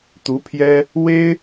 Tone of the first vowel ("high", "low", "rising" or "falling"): rising